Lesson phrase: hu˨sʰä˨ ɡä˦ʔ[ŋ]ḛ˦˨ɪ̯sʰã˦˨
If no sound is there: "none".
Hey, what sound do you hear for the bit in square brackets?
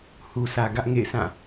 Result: ŋ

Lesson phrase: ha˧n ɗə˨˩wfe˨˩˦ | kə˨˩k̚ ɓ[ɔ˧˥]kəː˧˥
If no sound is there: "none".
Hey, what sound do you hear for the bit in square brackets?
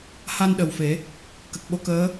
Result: o˧˥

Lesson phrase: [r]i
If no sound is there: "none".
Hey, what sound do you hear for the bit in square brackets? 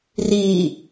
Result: r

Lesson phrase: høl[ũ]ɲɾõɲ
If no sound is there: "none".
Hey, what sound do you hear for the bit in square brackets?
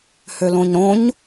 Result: õ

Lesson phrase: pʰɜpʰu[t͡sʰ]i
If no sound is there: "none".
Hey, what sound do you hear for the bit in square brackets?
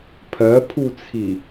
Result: t͡sʰ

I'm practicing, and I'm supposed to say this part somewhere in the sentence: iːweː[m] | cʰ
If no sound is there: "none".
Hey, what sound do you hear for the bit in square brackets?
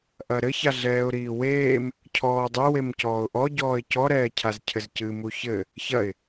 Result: m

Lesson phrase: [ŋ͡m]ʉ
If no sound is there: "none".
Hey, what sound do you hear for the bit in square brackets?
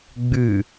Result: ɡ͡b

